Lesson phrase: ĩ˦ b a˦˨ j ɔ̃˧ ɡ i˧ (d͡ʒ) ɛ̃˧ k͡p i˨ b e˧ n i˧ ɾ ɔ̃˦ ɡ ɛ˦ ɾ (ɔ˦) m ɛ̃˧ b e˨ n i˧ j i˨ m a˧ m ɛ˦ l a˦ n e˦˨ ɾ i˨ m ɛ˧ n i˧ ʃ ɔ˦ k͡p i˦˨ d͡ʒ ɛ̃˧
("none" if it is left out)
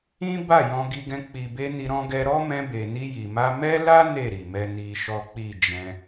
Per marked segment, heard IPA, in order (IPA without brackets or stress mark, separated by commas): ɡ, ɔ˦